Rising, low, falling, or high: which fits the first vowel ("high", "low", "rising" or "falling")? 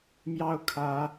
high